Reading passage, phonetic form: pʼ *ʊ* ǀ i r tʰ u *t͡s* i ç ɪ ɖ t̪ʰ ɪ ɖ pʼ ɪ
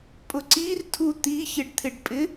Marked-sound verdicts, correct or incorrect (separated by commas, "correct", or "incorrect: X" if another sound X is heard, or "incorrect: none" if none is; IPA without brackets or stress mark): correct, incorrect: t̪